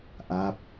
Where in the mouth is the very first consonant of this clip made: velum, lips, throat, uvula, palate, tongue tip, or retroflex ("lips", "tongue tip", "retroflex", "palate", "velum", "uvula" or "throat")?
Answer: throat